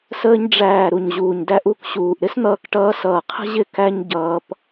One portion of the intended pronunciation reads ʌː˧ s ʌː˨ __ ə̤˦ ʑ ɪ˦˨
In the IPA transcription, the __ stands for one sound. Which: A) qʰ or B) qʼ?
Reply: A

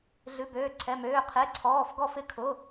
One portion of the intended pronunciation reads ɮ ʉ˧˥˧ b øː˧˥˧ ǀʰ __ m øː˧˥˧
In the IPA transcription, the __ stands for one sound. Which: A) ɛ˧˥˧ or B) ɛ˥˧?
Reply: A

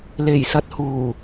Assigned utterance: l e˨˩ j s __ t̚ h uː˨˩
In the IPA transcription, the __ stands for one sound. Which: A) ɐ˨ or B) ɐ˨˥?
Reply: A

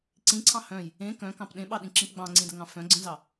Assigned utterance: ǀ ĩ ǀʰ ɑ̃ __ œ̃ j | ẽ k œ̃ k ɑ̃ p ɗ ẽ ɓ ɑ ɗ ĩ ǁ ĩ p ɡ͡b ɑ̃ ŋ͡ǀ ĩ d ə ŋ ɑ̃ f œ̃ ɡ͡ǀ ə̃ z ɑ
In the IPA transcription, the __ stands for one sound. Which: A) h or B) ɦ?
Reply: A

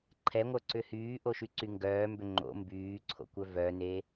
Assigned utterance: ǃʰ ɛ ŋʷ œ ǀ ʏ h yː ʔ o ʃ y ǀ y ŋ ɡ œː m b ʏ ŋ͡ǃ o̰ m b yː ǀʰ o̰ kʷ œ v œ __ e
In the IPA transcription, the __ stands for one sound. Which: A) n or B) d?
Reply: A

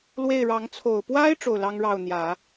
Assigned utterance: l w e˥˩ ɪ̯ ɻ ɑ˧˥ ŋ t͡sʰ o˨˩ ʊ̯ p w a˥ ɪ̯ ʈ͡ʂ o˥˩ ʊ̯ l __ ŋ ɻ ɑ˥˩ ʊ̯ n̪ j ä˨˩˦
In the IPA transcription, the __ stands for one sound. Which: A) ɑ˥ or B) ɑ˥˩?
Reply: A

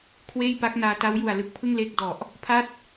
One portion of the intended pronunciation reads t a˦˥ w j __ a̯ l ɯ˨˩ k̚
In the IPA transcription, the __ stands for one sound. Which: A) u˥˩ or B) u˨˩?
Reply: B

